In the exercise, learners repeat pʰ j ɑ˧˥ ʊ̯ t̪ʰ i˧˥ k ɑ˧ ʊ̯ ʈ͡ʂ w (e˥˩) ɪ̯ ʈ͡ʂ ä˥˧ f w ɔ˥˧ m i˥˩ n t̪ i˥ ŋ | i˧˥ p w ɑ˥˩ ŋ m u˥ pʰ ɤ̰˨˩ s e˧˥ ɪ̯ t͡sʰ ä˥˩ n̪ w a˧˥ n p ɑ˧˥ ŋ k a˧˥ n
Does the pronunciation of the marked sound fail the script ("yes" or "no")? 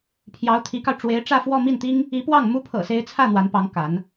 yes